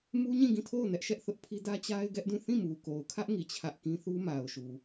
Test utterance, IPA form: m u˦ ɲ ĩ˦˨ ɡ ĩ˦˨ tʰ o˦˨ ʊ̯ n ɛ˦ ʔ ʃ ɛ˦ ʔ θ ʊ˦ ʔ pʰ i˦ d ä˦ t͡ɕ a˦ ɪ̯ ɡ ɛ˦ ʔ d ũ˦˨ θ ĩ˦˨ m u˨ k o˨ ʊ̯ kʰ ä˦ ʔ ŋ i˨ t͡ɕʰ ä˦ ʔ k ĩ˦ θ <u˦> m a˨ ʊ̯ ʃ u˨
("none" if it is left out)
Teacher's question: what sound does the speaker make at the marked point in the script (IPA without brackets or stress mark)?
u˦